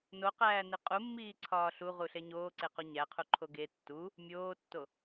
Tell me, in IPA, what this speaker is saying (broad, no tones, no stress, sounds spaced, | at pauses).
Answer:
n o q æː n i qʼ u mː iː ǀʰ ɒː ɬ u ʁ u ɬ e ɲ oː ǀ e q u ɲ æ qʰ u ǃʰ o ɡ e tː u | mʲ oː tː o